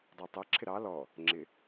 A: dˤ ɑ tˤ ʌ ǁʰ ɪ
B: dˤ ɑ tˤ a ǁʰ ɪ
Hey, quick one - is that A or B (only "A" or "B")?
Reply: A